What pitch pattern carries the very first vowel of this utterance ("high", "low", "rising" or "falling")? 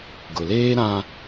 low